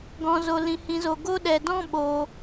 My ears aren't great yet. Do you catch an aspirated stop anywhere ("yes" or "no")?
no